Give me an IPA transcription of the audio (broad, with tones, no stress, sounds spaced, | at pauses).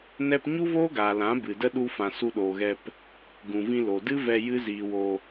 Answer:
n ɛ˦ p ɲ u˦ v oː˦ ɡ aː˨ l ã˨˦ b ɨ˨ d ə˦ ɗ u˦ f ã˧ s u˧ ɗ oː˨ ɣ ɛ˧ p | ɡ ũ˨ v ĩ˧ l o˨ d ɨ˦ v ɛ˧ j ɨ˦ z iː˧ w o˧